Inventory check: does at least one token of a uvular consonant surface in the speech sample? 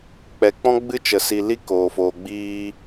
no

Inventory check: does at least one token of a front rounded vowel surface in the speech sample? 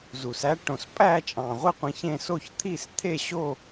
no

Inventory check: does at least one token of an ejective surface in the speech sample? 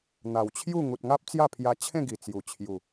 no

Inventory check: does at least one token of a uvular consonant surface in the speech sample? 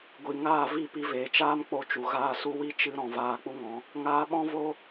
no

